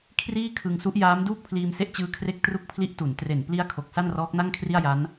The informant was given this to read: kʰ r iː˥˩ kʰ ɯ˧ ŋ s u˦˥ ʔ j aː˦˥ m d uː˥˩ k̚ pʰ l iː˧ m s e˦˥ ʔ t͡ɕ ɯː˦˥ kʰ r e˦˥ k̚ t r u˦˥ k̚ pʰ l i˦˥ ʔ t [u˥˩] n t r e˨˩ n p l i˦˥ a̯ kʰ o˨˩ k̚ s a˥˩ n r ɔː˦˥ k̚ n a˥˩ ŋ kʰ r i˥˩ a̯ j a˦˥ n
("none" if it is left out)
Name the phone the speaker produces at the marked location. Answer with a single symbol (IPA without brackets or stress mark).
u˩˦